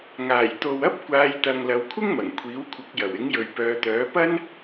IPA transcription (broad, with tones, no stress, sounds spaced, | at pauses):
ŋ aː˨˩ j t̪ o˨ w ɐ˥ p̚ kʷ aː˨˧ j t̪ ɐ˨ ŋ l ɐ˨˧ w kʷʰ ɪ˥ ŋ m ɐ˨˩ ŋ kʷʰ iː˨˥ w kʷʰ ɪ˨˥ k̚ j ɐ˨˩ w ɪ˨˥ ŋ j ɵ˨ ɥ p œː˨˧ t̪ œː˨˥ p ɐ˥ n